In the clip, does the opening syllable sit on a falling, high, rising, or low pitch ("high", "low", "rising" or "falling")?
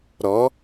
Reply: rising